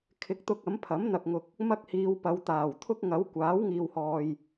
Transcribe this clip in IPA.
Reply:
kʰɪ˨˥k̚t̪ʊ˧k̚ ɐ˨˥mpʰɐ˨˥m n̪ɐ˨k̚ŋʊ˨k̚ | mɐ˥k̚hiː˨˧w pɐ˨˧wt̪aː˨˩w t̪ʰʊ˥k̚ŋɐ˨˥wkʷaː˨˥w ŋiː˨whɔː˨j

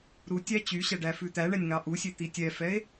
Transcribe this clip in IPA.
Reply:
ɾutʲæ t͡ɕyɕæ ɖæfʉt̪æɳɛnʲ ŋɑʔusʲe t̪itʲɛfɛe̯

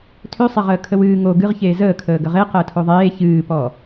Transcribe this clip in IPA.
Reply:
tʰøsˤe ʁəːkʰəwɨː ŋo ɡɨʁçeː zəːkʰəː ɡəʁe qəːtʰoðˤeː çɨːpɔ

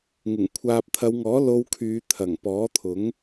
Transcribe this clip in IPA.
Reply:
ŋɪ˨˩ŋ kʷʰaː˨p̚t̪ʰɐ˨˧wŋɔː˨˥ lo˧wkʰyː˨˧t̪ʰɐ˨˩ŋ pɔː˨˥t̪ʰʊ˨˥ŋ

